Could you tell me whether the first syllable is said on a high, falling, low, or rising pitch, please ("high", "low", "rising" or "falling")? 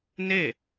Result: falling